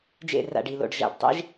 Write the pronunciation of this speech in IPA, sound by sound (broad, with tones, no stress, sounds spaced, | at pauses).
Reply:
d͡ʒ ḛ˦˨ r a̰˦˨ ɖ i˨ l o̰˨ ɖ ʒ a̰˨ ɖ tˤ ḛ˦ ʒ